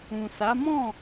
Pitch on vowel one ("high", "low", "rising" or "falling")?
low